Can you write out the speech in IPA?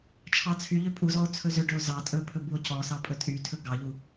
t͡ʃʰɑt͡sʰyʎø pʼuzɔo̯ t͡sʰɵzøɖɵo̯ zɑ tʼɵpʰɵ buo̯cɔsɑ pʼɵtʼytʰɵ ɡɑʎu

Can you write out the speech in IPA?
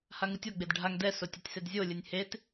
haŋɯtʲɔ ɡ͡bedɖʱaŋ dɛsotʲɛtʲsed zʲolʲɯnʲ het

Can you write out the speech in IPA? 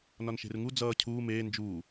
nɒnʃe̤rŋu d͡zʌː cʰuː meː nd͡ʒuː

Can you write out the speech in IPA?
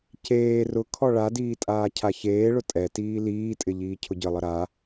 ceː rʊkʰɔ ɭadiː tʼaːcʰaçeːɭʊ tʼɛtiː liːtʼɪ ʎiːcʰʊɟəlˠə ɾa

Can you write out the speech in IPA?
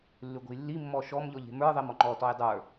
lːʉɡʷə̤jlːi mːɔʃɔm ʎɔʎe̤mə˞ ðˤemɔŋ͡ǃɔ tɔjdˤə˞

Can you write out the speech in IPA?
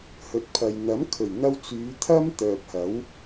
hɵ˨t̚pʰɐ˨j n̪ɐ˨˥mkʰɵ˨˩ɥ n̪ɐ˥w t͡syː˨˧t̪ʰɐ˥m t̪œː˨p̚hɐ˨˥w

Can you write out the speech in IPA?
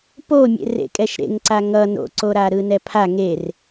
pomʲḛ rḛkʼɛʃɾḛŋǀa ŋʌ no̰ǀoɾa ɾɯnɛpʰa ŋer

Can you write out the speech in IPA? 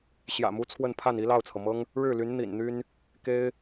ɕjä̰˨˩mu˧˥ t͡sʰwə˥˧npʰa˥˩n i˥lɑ˥˩ʊ̯t͡sʰɤ˩mɤ˥ŋ | ɻɻ̩˥˩ly˧˥n n̪ḭ˨˩nn̪y˥n | ke˥ɪ̯

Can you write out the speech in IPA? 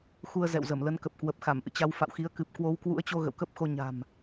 xu˧ə̯zɛ̰˧˨wzə˧˩m lə˨˦nkə˨˩p̚kwə˨˩p̚xa˧˩m ʔɨ̰˧˨t͡ɕa˨˦wfa̰˧˨wxi˨˦ə̯ kɨ˨˩p̚ kwo˨˦wkwṵ˧˥ə̯t͡ɕo˧ ɣə̰˧˨wkə˦˥p̚xo˧ ɲa̤˨˩m

